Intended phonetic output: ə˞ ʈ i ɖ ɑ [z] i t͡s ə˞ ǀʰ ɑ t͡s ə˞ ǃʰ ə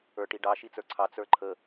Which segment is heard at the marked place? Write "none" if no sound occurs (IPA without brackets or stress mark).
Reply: ʃ